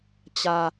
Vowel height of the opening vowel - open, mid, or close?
open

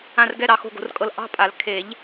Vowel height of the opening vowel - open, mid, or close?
open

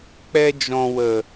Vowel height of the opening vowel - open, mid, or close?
mid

